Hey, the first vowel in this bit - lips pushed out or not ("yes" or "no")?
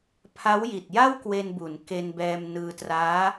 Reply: no